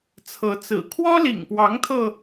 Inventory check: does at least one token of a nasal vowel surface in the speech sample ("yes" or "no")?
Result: no